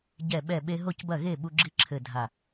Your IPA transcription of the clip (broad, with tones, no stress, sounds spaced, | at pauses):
ɟ ɛ˧˩ ɓ ɛ˧˩ ɓ e˧ ɦ o˥˩ c b ɐ˥˩ ɣ e˥˩ ɓ u˧ ɡ͡ǁ i˧˥ ǁʰ ɘ˧˩ dʱ a˧˩